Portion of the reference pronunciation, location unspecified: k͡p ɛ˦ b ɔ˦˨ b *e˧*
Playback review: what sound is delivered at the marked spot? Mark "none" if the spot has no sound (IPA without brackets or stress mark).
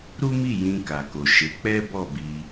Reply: i˧